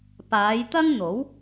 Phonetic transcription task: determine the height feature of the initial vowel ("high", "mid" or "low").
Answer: low